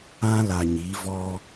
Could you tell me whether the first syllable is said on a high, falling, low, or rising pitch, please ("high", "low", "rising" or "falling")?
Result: high